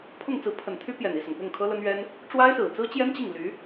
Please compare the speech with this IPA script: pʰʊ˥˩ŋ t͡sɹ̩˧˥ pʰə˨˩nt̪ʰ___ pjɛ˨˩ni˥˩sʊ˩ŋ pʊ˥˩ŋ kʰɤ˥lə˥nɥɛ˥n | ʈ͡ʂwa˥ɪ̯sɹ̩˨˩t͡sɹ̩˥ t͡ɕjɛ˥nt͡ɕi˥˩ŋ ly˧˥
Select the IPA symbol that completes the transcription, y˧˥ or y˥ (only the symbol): y˥